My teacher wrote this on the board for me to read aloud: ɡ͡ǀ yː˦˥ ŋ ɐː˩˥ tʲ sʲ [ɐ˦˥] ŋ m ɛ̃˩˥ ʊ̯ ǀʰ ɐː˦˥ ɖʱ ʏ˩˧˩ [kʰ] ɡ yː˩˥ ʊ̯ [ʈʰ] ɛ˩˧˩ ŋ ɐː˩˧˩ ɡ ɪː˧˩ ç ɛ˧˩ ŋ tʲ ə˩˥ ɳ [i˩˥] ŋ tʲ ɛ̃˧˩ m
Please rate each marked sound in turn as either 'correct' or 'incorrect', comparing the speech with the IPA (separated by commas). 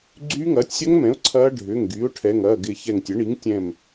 correct, incorrect, correct, correct